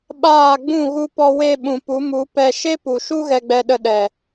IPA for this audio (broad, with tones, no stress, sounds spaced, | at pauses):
ɓ aː˦˨ ɡ͡b ũ˦˨ ɣ u˧ p ɔ˧ w e˧ ɓ ũ˨ p u˨˦ m u˨˦ p ɛ˧ ʃ e˦ p u˨ ʃ u˦ ɣ ɛ˧ ɡ͡b ɛ˧ ɗ ə˧ ɗ ɛ˨